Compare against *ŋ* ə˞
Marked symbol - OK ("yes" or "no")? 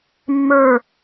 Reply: no